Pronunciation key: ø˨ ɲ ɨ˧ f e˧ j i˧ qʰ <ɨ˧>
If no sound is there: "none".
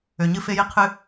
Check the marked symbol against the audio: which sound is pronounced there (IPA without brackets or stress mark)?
ɨ˧